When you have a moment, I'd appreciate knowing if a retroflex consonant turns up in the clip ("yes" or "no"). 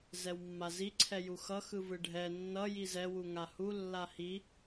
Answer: yes